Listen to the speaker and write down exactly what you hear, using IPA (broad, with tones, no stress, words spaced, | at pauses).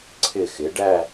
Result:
ǀʰɪ˧˩xɪ˩˧ɖæ˥˧